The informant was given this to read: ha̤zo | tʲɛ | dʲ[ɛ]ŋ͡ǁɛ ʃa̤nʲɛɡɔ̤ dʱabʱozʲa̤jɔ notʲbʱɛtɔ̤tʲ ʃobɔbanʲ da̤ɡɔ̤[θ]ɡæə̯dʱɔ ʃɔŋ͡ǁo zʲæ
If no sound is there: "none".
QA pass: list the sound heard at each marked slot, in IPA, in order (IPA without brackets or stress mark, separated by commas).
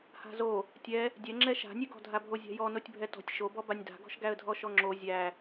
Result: ɛ, ʃ